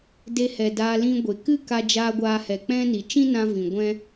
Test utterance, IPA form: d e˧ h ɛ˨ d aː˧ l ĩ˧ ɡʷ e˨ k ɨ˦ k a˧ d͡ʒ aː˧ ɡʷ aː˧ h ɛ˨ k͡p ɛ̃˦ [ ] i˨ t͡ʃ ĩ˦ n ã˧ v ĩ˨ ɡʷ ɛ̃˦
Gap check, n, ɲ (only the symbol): n